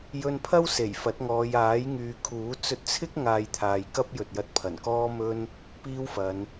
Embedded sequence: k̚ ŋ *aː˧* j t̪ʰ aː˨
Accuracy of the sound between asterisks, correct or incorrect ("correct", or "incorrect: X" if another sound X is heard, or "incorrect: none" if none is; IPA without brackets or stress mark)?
correct